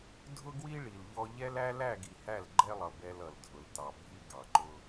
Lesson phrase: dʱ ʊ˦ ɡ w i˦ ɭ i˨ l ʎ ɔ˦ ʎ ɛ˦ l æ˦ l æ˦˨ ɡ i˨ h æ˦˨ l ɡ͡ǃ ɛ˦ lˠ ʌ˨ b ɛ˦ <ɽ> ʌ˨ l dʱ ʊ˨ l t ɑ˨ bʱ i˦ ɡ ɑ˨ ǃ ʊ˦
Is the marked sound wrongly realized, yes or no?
yes